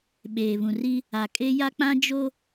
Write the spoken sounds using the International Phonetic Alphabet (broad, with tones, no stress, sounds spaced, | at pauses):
ɓ eː˨ β ũ˨ r i˦ | a˨ kʼ e˦ j a˦ k͡p ã˦ d͡ʒ o˦